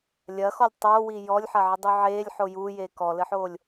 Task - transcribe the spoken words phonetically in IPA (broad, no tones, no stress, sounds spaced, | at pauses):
lʲ ɐ x ɔ lʲ tˤ oː w i j ɔ lʲ ħ ɐ ʕ ɘ dˤ u ʕ eː lʲ ħ o j uː j eː k ɔ l ɘ ħ oː lʲ